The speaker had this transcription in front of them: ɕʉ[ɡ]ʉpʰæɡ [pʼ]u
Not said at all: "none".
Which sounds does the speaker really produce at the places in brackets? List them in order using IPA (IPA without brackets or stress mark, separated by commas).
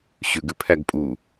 ɡ, pʼ